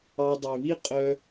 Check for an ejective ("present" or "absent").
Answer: present